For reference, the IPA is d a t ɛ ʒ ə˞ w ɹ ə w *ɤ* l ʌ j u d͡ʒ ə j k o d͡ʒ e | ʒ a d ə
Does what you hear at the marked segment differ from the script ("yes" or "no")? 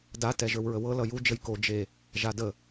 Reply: no